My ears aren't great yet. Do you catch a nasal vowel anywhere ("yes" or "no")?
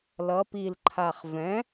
yes